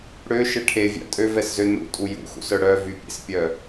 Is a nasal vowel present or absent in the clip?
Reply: absent